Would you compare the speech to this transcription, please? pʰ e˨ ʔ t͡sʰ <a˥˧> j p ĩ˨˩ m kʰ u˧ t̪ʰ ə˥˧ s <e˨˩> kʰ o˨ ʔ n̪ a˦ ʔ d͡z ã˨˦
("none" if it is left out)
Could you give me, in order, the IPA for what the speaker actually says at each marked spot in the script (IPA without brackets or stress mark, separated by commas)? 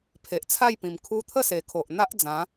a˥˧, e˨˩